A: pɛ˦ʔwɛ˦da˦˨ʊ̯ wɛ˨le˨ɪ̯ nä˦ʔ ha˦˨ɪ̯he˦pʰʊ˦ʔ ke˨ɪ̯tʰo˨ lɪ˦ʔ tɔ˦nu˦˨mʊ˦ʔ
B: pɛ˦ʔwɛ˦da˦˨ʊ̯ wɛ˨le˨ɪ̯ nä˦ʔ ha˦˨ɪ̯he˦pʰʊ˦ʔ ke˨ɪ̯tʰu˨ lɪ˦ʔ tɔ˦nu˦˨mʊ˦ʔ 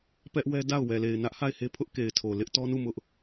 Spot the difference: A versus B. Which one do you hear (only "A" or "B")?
A